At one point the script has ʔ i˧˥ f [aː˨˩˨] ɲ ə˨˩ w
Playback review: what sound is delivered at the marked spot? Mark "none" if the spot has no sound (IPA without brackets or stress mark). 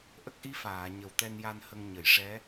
aː˨˩˨